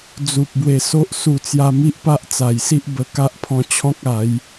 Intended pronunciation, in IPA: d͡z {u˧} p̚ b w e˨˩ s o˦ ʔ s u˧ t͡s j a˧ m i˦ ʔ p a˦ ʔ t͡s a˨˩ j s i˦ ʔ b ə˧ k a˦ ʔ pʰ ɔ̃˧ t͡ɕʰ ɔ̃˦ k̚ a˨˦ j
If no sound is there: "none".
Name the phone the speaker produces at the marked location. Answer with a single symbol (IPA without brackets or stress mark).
u˨